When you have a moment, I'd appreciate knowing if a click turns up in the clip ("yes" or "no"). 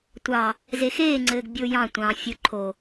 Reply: yes